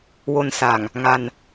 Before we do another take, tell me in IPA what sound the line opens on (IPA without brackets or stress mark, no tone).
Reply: w